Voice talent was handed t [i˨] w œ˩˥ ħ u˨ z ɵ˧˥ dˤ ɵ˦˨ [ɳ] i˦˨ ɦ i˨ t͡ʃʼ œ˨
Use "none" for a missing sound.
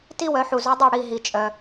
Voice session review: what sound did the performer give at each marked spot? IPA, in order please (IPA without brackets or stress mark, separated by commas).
i˥, ɽ